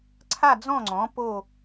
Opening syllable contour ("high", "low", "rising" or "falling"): falling